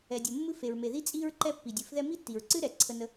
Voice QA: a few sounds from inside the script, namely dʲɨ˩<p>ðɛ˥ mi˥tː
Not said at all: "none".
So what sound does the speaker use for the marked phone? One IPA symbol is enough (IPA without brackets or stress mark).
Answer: f